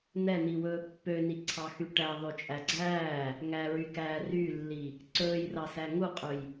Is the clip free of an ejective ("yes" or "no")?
no